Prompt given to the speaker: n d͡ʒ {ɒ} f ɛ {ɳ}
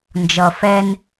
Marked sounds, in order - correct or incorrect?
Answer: incorrect: ʌ, incorrect: n

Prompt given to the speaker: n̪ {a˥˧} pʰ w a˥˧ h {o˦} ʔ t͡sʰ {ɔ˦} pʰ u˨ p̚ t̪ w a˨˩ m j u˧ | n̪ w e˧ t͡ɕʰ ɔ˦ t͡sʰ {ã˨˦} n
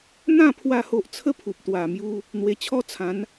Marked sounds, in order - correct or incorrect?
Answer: incorrect: ã˥˧, correct, incorrect: ə˦, correct

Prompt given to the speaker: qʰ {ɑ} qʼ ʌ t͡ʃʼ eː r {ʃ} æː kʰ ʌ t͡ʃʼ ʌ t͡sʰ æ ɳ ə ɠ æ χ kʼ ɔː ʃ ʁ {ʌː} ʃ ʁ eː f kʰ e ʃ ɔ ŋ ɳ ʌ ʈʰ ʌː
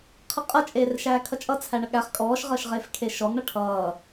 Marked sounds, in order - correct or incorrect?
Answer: incorrect: ə, correct, correct

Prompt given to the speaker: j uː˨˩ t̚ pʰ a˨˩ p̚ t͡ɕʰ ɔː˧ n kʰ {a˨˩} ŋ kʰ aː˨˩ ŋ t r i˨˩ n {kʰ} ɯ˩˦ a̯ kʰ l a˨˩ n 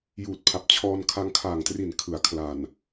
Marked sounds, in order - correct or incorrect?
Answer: incorrect: a˧, correct

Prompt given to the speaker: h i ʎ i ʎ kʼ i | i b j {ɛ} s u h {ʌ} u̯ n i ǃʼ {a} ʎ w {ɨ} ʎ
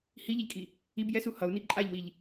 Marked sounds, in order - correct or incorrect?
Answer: correct, correct, correct, incorrect: i

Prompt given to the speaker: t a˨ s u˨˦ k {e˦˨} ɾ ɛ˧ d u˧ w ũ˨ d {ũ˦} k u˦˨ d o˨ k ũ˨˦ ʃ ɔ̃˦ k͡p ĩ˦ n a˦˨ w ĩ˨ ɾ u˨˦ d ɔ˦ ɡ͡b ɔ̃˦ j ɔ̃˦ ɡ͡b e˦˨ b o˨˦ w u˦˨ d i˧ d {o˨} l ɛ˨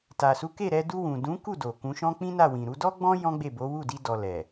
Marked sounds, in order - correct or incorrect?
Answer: correct, incorrect: ũ˨˦, incorrect: ɔ˨

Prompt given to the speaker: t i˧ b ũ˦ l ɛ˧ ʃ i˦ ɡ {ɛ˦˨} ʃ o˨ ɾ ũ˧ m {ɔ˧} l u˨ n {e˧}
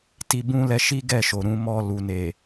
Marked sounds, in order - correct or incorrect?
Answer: correct, correct, incorrect: e˨

